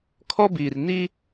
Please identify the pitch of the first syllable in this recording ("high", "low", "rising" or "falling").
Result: high